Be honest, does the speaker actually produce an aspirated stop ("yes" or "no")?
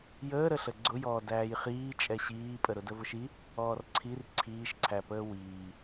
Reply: yes